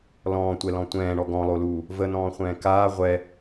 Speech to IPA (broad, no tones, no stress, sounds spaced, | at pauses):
l ɔ̃ː tʷ ɛ l ɔ̃ tʷ ɛ̃ː ɳ ɔ ɡ ɔ̃ lˠ o l uː | v ə n ɔ̃ː χʷ ɛ̃ː k aː ʁʷ ɛ